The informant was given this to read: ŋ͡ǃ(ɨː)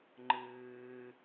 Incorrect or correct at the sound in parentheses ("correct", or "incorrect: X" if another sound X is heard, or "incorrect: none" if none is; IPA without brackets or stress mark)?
correct